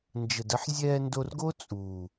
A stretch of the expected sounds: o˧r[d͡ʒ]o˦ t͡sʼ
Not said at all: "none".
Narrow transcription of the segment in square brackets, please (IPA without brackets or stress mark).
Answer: ɡ